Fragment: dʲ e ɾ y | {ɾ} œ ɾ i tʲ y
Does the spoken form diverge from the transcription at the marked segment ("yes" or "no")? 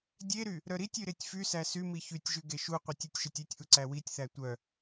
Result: no